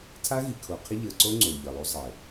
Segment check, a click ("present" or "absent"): present